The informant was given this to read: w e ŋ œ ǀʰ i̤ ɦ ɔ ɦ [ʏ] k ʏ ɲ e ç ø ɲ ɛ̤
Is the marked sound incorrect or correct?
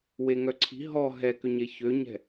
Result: incorrect